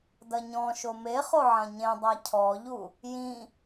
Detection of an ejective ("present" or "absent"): absent